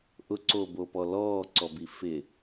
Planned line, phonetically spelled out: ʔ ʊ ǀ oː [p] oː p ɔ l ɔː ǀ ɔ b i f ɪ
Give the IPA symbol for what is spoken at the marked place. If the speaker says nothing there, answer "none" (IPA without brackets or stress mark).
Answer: b